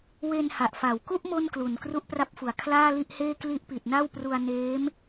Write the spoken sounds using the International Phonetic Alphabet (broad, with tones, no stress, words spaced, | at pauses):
we˧nha˨˩ʔfa˨˩wku˥˩ʔ mo˥˩nklu˨˩n kru˦˥ʔpra˦˥p̚fu˨˩a̯ kʰlaː˥˩li˥˩ʔheː˥˩ kli˦˥ʔpi˨˩t̚na˥˩w pru˧a̯neː˦˥m